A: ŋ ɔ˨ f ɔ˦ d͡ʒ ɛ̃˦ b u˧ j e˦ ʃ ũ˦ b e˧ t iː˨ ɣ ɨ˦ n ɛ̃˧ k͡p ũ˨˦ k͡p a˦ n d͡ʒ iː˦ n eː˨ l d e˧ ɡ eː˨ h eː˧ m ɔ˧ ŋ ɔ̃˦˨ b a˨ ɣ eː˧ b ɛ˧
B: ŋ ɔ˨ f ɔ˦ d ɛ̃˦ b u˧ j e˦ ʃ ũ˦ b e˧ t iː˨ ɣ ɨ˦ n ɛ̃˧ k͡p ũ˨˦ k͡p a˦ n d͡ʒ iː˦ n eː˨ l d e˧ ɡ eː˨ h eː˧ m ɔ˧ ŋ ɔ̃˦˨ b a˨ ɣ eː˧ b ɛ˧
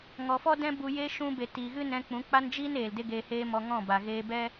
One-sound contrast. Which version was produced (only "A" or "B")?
B